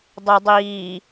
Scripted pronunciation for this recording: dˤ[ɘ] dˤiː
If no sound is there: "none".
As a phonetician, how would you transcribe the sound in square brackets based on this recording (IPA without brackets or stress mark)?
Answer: ɘ